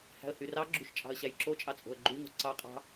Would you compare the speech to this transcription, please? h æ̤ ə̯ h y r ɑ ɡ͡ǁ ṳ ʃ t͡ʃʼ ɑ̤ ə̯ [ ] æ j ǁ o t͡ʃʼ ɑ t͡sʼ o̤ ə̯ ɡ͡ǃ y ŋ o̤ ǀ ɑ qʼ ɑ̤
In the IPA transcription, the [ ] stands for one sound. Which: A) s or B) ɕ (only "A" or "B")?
B